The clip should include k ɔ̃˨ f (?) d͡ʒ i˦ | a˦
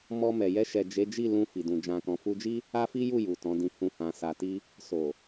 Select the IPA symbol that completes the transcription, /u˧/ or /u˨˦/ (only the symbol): u˧